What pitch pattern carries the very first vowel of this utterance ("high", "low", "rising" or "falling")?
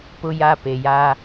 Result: high